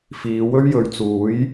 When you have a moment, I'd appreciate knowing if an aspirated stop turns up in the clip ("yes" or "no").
no